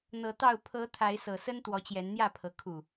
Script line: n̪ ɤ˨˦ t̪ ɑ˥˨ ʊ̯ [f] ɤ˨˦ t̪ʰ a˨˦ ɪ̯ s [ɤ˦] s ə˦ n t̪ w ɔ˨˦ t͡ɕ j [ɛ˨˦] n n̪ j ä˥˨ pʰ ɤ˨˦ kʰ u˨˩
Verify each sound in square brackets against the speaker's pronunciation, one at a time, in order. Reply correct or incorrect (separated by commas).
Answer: incorrect, incorrect, correct